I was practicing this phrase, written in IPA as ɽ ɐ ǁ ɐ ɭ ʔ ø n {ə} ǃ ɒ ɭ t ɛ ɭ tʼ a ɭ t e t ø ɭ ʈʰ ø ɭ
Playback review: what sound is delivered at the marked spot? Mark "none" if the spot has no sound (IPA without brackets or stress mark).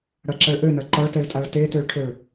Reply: ɐ